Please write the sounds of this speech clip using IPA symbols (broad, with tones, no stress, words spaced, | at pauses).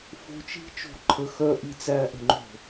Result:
fo̤˧˥˧t͡ʃi̤˥t͡ʃo̤˥˩ ǃʰə˧˥˧ xœ˥ ʔi˥˩t͡sæ˥˧ʔə̤˥˩ŋ͡ǃo̤˥˩